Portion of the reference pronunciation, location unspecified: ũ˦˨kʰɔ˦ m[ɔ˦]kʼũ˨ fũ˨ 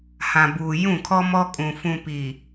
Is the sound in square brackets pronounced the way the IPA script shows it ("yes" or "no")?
yes